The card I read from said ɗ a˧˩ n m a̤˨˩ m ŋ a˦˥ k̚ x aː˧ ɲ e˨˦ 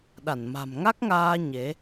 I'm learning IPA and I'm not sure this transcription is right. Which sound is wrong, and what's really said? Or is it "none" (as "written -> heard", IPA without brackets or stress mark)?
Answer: x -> ŋ